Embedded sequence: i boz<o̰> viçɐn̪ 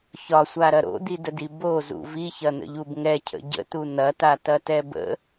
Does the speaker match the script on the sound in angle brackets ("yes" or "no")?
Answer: no